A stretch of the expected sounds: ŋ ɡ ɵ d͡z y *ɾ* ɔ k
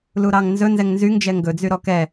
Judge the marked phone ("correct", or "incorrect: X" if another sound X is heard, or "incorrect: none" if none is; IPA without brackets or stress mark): correct